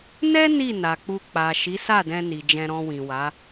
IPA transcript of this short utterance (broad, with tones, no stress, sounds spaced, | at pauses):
n ɛ˦ n i˦˨ n a˨ k͡p u˧ k͡p a˨ ʃ i˨˦ s a˦˨ d ɛ̃˧ n i˨ d͡ʒ ɛ̃˧ ɾ ɔ̃˧ w ĩ˨ w a˨˦